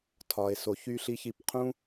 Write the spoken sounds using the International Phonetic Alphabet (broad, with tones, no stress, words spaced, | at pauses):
tʰɒ˧e̯ so˧çy˦ɬi˦ çi˧pqʰũ˦